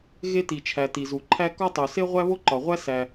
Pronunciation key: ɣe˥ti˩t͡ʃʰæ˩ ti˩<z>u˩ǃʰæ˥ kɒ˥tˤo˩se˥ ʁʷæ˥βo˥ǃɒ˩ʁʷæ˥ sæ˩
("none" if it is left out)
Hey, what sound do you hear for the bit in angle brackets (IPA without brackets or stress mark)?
z